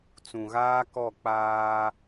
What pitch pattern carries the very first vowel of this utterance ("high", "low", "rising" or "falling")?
low